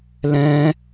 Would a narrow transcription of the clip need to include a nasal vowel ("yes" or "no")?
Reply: yes